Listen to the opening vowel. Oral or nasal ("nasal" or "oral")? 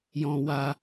nasal